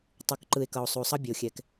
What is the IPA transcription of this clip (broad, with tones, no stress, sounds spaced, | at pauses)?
tˤ u˩ k ǃ ɯ˩ e̯ k ʌ˩ o̯ sˤ u˩ sˤ ʌ˦ bʲ e˩ o̯ xʲ ɛ˩ k